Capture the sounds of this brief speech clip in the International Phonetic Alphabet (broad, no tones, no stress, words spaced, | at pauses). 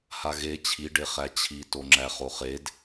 haɣe t͡ɕʰiɖe χæt͡ɕʰitoŋ͡ǁæ χoχed